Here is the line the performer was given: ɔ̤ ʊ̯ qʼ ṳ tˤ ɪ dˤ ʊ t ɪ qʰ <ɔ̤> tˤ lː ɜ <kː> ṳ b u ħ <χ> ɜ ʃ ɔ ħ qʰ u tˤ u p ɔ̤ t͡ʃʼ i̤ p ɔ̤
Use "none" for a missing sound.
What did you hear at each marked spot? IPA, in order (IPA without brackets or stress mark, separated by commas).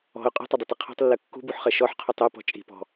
ɔ̤, kː, χ